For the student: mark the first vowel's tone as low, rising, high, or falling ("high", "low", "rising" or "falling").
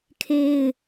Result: high